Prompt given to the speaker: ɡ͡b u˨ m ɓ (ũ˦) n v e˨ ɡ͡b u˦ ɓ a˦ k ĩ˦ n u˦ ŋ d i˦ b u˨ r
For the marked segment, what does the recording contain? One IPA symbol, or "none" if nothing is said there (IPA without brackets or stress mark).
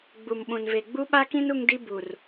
ũ˨